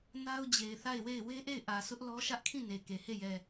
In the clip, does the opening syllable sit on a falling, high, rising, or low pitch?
high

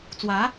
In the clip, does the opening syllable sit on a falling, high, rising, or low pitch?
rising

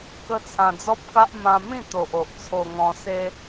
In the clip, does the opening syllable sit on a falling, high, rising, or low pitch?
high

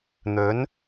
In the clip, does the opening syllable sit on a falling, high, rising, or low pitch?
rising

